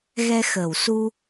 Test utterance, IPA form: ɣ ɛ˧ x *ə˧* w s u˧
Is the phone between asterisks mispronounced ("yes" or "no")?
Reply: yes